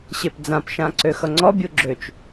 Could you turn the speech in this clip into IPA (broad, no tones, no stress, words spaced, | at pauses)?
ɕepd͡zãpʃã ǀøxʌŋ͡ǀɔbʲu ɡ͡ǁøt͡ʃ